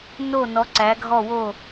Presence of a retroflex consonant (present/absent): absent